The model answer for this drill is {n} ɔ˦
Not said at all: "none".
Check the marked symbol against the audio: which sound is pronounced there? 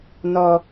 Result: n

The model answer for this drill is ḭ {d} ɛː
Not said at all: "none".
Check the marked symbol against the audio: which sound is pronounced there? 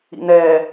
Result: n̪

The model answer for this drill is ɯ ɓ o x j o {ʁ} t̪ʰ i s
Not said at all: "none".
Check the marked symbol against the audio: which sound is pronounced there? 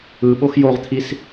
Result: ʁ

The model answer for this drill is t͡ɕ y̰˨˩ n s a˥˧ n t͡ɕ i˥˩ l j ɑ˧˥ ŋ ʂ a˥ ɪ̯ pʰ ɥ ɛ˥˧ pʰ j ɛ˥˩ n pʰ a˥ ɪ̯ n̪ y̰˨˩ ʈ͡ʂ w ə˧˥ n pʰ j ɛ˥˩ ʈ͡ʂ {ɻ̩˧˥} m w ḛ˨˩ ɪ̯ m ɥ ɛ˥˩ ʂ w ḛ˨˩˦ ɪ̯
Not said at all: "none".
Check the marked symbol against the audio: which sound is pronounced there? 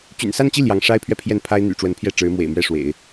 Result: ɻ̩˧˥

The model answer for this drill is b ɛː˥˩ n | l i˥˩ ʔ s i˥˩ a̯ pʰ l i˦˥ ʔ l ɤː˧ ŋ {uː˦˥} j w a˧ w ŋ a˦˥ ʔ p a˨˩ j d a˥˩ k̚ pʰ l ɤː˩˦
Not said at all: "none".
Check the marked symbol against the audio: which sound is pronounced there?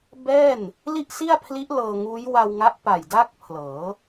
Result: uː˦˥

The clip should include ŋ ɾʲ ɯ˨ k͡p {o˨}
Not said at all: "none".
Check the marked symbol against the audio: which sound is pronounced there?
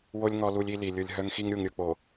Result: o˨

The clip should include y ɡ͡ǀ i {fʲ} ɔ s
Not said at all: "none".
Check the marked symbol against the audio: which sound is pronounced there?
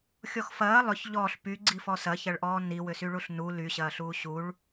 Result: f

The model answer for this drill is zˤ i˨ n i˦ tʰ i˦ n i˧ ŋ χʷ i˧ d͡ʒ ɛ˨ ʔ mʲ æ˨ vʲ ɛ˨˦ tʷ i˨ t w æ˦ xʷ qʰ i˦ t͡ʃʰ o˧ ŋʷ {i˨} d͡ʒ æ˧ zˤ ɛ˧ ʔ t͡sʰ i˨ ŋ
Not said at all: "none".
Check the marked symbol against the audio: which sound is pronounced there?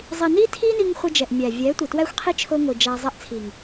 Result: i˨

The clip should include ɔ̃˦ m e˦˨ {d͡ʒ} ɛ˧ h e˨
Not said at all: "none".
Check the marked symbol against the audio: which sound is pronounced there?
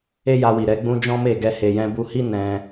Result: ɡ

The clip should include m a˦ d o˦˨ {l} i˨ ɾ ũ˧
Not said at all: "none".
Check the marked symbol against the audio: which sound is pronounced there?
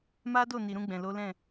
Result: n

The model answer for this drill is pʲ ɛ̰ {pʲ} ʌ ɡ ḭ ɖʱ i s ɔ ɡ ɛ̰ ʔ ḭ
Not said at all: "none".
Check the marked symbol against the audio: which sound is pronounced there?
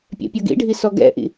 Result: pʲ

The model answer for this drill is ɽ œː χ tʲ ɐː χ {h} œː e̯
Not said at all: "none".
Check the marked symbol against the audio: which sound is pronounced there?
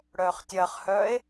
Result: h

